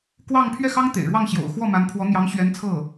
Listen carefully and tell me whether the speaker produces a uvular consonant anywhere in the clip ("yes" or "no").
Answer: no